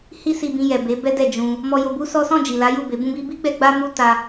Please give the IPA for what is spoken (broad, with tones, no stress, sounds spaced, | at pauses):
h i˦ s i˧ b ĩ˧ j ɛ˨ b e˨˦ b ɛ˦ d ɛ˦˨ d͡ʒ ũ˧ | m ɔ˧ j o˧ b u˦ s ɔ˦ s ɔ̃˦˨ d͡ʒ i˨ l a˨˦ j u˦˨ b e˨˦ b ũ˦ b i˦ b i˦ ɡ͡b ɛ˧ ɡ͡b a˦ m u˦ t a˧